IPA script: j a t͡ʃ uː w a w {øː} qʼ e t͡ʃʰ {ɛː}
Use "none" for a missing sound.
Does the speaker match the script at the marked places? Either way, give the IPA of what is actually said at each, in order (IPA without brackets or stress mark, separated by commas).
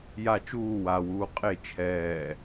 uː, ɛː